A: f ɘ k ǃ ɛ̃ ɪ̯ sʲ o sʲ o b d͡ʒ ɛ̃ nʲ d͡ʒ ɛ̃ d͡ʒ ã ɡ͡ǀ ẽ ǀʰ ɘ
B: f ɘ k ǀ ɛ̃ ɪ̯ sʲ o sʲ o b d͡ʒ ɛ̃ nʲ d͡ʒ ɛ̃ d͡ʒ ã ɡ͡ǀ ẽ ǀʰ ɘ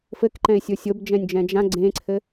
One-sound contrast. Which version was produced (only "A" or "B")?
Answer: A